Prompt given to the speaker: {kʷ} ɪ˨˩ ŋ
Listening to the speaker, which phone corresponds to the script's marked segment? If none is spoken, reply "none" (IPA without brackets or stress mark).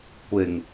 kʷ